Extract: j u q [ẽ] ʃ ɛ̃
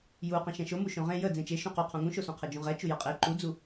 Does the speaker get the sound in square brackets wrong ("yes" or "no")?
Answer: no